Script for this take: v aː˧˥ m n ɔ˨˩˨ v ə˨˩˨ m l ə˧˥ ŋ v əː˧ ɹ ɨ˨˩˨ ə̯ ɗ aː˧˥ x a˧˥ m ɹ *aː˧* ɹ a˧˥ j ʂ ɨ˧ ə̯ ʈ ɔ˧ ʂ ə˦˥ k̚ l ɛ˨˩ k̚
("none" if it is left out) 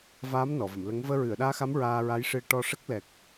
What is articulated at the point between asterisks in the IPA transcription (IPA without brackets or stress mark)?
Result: aː˧